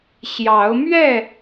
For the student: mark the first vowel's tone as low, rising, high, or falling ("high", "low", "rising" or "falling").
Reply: rising